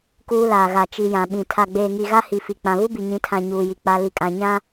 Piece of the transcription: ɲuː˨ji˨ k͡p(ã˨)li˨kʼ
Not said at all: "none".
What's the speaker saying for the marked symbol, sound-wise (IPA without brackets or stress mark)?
a˨